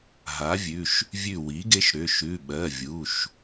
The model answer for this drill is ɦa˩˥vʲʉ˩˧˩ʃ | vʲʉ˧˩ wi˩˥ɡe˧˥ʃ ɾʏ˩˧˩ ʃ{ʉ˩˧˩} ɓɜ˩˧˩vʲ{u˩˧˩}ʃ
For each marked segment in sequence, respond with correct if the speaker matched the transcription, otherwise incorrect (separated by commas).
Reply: correct, correct